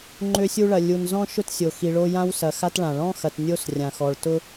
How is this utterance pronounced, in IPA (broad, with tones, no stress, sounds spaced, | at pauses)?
ŋ͡ǃ ø˦ sʲ u˦ ɭ ɐ˨ lʲ u˨ n z ɔ̃˥ ʃ ʊ˥ t sʲ o˨ x i˨ ɭ o˦ j ã˦ w s ɐ˨ x a˦ t ɭ ã˩ ɭ ɔ̃˥ x ɐ˨ t nʲ o˥ s rʲ ã˨ x ɔ˨ ɭ t ʊ˥